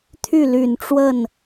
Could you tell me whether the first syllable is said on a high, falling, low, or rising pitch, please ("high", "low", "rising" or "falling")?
falling